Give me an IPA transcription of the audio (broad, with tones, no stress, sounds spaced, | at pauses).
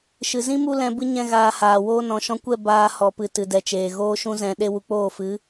ʃ ɨ˨ z ĩ˦ m u˧ l ɛ̃˧ b ɨ˦ ɲ ɛ̃˦ ɣ aː˧ h aː˨ w oː˦ n ɔ̃˨ ʃ ɔ̃˧ kʷ ɛ˦˨ b aː˧ h ɔ˨ p ɨ˨ t ɨ˨ d ɛ˨ t͡ʃ eː˨ ɣ oː˧ ʃ ũ˧ z ɛ̃˨ ɗ e˧ w u˨ k͡p oː˦˨ f ɨ˨˦